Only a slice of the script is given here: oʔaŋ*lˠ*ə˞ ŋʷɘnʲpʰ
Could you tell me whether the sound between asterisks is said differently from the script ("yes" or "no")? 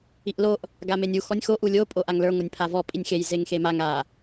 yes